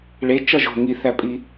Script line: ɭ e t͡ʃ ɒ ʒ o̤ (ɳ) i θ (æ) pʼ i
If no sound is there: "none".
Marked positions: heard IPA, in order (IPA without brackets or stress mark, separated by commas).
ŋ, æ